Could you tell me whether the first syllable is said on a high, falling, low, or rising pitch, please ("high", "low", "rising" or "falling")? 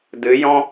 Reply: rising